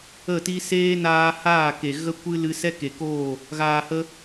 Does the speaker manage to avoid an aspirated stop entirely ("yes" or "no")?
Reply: yes